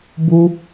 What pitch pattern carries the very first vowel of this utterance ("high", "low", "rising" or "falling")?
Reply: high